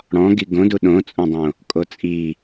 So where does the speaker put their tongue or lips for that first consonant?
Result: retroflex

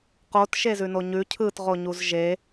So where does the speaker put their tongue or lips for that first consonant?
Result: uvula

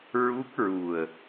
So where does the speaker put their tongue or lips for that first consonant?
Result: tongue tip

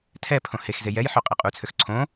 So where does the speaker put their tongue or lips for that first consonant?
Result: tongue tip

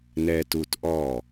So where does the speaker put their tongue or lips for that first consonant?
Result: tongue tip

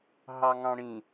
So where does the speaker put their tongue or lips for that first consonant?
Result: throat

